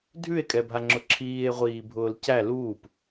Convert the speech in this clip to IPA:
dʱ ʉ e̯ kʼ ɛ bʱ a ŋ͡ǁ ʊ ǁʰ iː e̯ ʁʷ iː bʱ ʊː l c æ l uː p

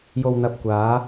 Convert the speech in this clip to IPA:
j o˨ w n̪ ɐ˨ p̚ kʷ aː˨˧

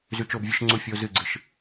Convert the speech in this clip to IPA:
z ʉ˧ t͡ʃ o˧ b vʲ ɨ˧ ʃ ŋ͡ǀ u˧ fʲ o˧ z ɨ˧˩ ɡ͡ǀ ɨ˨˥ ʃ

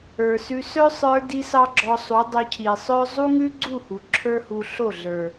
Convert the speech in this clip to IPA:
ə˞˨ s ʉ˧ s œ˦ sˤ ə˞˧ d i˦ s ɑ˦ ɡ͡ǁ ɔ˧ sˤ u˨˦ dˤ o˧ cʰ i˨ sˤ œ˦ zˤ u˦ ŋ ʉ˦ ɡ͡ǀ u˦˨ h u˨ ǁʰ ə˞˦ h u˧ ɬ o˦˨ ɮ ə˞˨

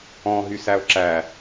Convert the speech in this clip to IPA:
ɔ̃ ɦ y s æ o̯ ǁ æ

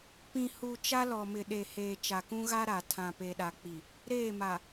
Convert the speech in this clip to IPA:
p ĩ˨ h u˨ t͡ʃ a˦ l ɔ˨ m ɪ˨ ɗ e˨ h eː˨ t͡ʃ a˨ k ũ˦ ɣ a˦ ɾ a˨ tʰ ã˨ p e˨ ɗ a˨ k͡p i˨ | ɾ eː˦˨ m a˨

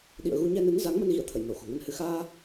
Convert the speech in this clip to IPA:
ɗ ḭ˧˨ ə̯ ɣ u˧ ɲ ɛ˧ n ɨ˨˦ n z a˨˦ ŋ m ə˧ n ɣ ḭ˧˨ ə̯ t̪ʰ ə̰˧˨ j n o˧˩ x o̤˨˩ ŋ ə˧ n h ɨ˧ x aː˧

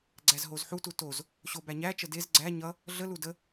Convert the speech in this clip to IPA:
ɡ͡ǀ æ z ɦ o z ħ u t u t o z | ɕ o b æ ɲ æ t͡ʃ ə d e z ɡ͡ǀ æ ɲ ʌ | ɮ ə l u d ə

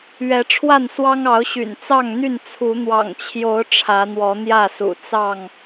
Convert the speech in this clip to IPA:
ɥ ɛ˨˦ ʈ͡ʂʰ w a˥˨ n s w ɑ˦ ŋ ɑ˨˦ ʊ̯ ɕ y̰˨˩ n t͡s ɑ˥˨ ŋ n̪ y˥˨ n t͡sʰ u˨˦ n̪ w ɑ̰˨˩ ŋ t͡ɕʰ j o˨˦ ʊ̯ ʈ͡ʂʰ ä˨˦ n̪ w ɔ˨˦ n̪ j ä˥˨ s ṵ˨˩ t͡s ɑ˥˨ ŋ

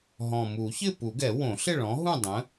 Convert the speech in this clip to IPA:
ɦ ɔ̃˨˩ m u˨˩˦ ç ɪ˥˨ p u˨˩˦ ɡ ɛ˨˩˦ w õ˨˩˦ ɬ ɪ˥˨ ɭ ɔ̃˨˥ ɦ ũ˥˨ dˤ ə̃˨˥

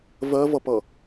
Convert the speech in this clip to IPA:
v ɜ v ʌ p ʌ

